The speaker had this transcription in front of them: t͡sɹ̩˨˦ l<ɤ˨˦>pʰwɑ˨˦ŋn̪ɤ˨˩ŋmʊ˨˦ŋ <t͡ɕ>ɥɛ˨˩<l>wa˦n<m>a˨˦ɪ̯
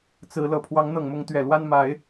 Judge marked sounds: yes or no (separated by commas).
no, no, yes, yes